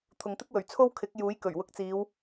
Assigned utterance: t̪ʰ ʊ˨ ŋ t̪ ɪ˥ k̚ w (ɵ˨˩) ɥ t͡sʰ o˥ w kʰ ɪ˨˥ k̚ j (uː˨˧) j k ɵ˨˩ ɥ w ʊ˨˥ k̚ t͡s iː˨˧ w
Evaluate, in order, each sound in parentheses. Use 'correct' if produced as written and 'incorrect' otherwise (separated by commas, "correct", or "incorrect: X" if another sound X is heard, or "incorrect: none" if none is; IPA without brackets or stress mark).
correct, incorrect: uː˨˥